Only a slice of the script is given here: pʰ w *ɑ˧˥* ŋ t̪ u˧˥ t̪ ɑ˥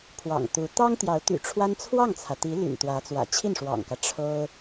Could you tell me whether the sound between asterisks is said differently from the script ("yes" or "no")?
yes